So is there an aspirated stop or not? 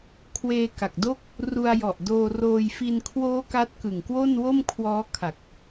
yes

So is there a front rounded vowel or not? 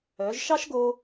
yes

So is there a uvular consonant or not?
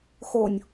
no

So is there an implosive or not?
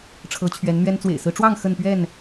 no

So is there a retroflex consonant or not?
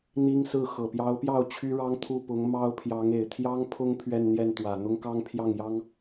yes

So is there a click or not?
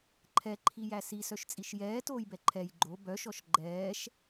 yes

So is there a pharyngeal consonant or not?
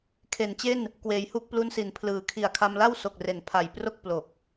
no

